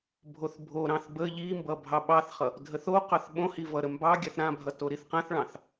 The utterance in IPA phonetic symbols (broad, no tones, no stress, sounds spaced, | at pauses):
bʱ o θ bʱ o ɾ ɑ̃ θ b ə ʎ i m b ʌ bʱ ɑ ɓ ɑ θ χ ʌ | dʱ ə θ o q ɑ θ ɓ õ h i v ʌ ɾ ə m b ɑ ɡʲ ɑ θ ɾ ã bʱ ʌ t o ɾ i θ q ã θ ɭ ɑ̃ θ